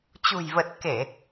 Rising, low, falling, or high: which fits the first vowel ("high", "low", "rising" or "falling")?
low